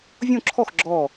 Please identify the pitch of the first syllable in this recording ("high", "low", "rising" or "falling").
falling